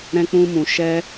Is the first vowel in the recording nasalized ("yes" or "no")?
yes